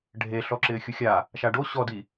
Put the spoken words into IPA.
ɖʱ e ɬ ɔ ǁ ɪː xʲ u xʲ a | ʃ a ɖ o ɕ ɔ d i

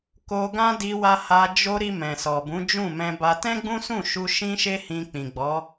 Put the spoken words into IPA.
k o˧ ɡ ã˦ d i˧ w a˧ h a˧ d͡ʒ o˧ ɾ i˧ m ɛ̃˨ s ɔ˨ b ũ˨˦ d͡ʒ ũ˦˨ m ɛ̃˧ b a˧ t ɛ̃˦ ɡ͡b ũ˦ s ũ˦˨ ʃ u˧ ʃ ĩ˦ ʃ e˦ h ĩ˧ k͡p ĩ˨ ɡ͡b ɔ˨˦

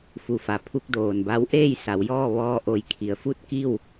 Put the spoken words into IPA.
f u˩ f a˩ pʰ u˧ k̚ d oː˩ n b a˧˥ w ʔ eː˥˨ j s a˩˧ w j ɔː˥˨ ʋ ɔː˧ ʔ o˧˩ j kʰ i˩˧ ə̯ f u˥˨ t̚ k i˥˨ w

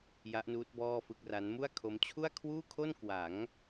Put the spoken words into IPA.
j a˦˥ ʔ n uː˦˥ t̚ b ɔː˥˩ f ɯ˥˩ k̚ r a˦˥ n m u˥˩ a̯ kʰ o˦˥ m t͡ɕʰ u˥˩ a̯ kʰ w uː˥˩ kʰ o˥˩ n k w a˩˦ ŋ

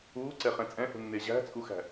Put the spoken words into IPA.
uː ǀ ɛ χ ɛ̃ t͡sʼ ɛ̃ h ṳ nː e ʑ æ̤ t͡sʼ u x æ̤

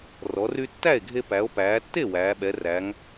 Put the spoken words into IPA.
r ɔ˩˧ r y˧ tː æ˥˩ e̯ ɡʱ e˧ p æ˩˧ o̯ p æː˩˧ tː e˥˩ w æː˩˧ ɓ ɛ˩˧ r æ˩˧ ŋ

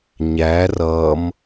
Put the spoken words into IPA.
ɲ æ r ʌ m

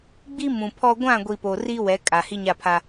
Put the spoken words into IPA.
ɡ͡b i˦ m ũ˨ pʰ ɔ˦ ɡʷ ã˦˨ ɡʷ i˨ p oː˨ r iː˦ w ɛ˨˦ kʼ a˨ h i˦ ɲ a˦˨ pʰ a˦

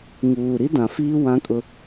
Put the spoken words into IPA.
ŋ uː˨ ɾ i˦ d ã˨ f iː˦ w ã˦ kʼ ʊ˦

